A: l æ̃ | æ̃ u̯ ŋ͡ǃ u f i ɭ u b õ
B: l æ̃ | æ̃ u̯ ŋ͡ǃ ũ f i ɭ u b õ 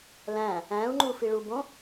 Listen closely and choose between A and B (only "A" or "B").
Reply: A